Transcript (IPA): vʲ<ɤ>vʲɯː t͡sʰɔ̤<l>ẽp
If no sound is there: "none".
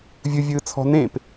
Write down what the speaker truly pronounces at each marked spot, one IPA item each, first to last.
ɯ, n

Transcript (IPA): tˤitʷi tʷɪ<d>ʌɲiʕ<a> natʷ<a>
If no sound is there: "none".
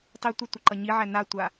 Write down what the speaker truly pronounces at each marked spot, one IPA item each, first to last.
ǃ, æ, a

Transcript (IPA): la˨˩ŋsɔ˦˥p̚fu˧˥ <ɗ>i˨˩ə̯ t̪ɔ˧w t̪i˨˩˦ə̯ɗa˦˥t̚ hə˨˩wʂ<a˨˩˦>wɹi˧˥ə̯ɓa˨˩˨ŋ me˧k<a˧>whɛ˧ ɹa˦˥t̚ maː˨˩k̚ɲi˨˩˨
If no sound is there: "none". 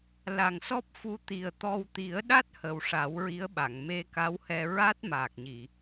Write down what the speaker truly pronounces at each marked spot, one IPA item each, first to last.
t̪, a˨˩˦, a˧˥

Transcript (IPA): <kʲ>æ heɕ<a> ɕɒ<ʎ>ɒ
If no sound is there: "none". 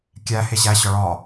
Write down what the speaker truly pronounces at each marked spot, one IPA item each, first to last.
kʲ, æ, ɭ

